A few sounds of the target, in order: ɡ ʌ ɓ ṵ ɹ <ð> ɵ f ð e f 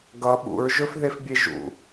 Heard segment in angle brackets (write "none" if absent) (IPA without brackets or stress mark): ʒ